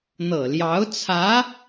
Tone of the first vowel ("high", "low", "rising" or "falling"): low